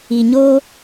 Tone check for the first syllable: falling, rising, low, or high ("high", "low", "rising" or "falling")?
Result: low